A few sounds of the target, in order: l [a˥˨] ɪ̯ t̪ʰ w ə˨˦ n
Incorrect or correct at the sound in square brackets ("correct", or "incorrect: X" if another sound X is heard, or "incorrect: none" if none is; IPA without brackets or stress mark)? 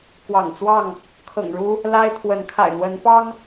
incorrect: a˦